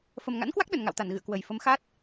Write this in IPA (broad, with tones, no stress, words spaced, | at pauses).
fə˨˩mŋa̰˧˥nkwa˦˥k̚ ɗə˧˩nŋa̰˧˨wt̪a˧˩n ɣɨ̰˧˨ə̯kwə˨˩j fə˨˦mxa˦˥t̚